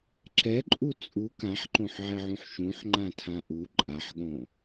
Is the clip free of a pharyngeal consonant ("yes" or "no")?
no